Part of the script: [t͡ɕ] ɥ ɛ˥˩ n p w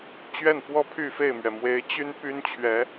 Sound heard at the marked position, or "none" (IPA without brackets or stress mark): t͡ɕ